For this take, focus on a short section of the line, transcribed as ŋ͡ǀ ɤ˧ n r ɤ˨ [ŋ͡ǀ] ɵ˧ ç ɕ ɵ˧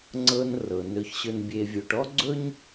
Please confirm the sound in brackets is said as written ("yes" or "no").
no